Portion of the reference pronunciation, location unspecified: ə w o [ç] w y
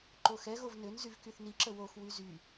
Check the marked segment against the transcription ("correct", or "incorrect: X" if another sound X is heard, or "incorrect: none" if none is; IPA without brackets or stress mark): incorrect: x